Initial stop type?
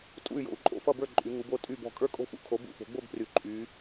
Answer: ejective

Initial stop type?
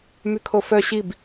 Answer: aspirated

